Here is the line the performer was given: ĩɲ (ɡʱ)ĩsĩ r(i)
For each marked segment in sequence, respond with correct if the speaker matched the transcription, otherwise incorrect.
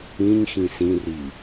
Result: incorrect, correct

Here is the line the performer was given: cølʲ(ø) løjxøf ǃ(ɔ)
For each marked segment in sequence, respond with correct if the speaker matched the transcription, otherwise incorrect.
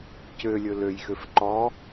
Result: incorrect, correct

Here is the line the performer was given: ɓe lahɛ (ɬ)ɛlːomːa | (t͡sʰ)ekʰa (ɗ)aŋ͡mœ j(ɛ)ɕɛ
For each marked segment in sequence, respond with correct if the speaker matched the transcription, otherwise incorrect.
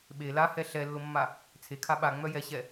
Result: correct, correct, incorrect, correct

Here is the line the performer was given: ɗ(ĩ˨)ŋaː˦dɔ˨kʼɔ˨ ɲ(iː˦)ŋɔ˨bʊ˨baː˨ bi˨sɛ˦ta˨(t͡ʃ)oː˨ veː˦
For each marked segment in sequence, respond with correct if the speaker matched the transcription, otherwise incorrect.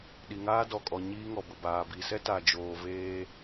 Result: incorrect, correct, incorrect

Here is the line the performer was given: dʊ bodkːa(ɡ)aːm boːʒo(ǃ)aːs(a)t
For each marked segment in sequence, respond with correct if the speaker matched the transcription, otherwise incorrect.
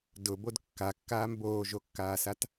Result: incorrect, incorrect, correct

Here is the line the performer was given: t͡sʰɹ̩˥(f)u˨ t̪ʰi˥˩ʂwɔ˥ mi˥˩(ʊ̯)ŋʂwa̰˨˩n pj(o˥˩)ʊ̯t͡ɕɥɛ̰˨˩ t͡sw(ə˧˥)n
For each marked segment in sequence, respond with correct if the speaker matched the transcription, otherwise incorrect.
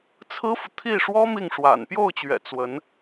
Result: correct, incorrect, correct, correct

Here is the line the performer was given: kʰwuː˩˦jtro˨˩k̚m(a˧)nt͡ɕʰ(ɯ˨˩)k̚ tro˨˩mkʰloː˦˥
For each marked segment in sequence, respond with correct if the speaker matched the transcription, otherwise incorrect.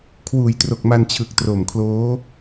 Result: correct, correct

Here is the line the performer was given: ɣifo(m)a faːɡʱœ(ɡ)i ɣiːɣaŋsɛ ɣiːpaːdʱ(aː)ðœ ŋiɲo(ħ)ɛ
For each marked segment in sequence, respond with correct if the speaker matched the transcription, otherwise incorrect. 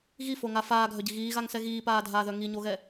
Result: incorrect, incorrect, correct, incorrect

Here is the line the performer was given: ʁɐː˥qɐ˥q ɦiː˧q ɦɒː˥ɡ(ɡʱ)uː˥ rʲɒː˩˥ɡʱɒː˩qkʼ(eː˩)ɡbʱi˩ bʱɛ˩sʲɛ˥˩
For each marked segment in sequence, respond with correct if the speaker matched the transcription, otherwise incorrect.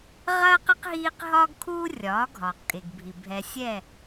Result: incorrect, incorrect

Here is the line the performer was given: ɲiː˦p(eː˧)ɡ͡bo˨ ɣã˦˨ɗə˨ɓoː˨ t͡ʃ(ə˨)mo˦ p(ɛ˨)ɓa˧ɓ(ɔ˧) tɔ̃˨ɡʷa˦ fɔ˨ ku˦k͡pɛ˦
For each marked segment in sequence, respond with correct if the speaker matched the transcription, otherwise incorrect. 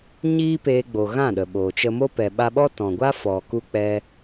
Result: correct, incorrect, correct, incorrect

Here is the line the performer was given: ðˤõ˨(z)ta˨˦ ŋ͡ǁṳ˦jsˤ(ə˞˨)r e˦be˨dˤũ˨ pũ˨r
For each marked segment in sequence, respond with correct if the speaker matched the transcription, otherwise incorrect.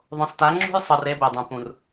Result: incorrect, incorrect

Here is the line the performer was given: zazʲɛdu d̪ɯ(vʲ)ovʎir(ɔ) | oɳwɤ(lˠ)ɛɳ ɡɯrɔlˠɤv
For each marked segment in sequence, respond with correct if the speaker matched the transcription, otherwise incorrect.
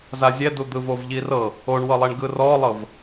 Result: incorrect, incorrect, correct

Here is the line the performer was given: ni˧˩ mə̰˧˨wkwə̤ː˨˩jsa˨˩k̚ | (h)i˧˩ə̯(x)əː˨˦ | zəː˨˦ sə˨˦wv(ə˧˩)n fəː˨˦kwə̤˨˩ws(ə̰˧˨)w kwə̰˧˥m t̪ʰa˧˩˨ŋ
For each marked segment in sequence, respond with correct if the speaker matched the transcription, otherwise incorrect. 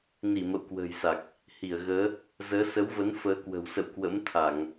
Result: correct, incorrect, incorrect, correct

